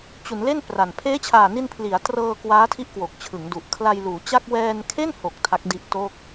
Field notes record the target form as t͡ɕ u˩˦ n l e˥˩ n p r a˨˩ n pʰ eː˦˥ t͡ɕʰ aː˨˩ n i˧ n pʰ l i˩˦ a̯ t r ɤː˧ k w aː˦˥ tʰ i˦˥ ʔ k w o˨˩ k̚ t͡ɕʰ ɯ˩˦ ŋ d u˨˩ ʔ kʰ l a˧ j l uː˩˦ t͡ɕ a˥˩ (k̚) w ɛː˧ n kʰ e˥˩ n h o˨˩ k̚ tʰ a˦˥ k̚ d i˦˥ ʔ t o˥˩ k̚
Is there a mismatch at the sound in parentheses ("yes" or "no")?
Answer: no